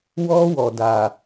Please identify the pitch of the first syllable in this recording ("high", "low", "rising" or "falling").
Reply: high